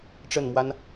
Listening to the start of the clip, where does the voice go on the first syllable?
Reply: falling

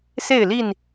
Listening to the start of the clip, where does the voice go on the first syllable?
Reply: falling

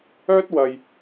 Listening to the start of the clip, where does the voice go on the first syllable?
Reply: high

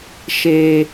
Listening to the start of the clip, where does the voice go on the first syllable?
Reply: high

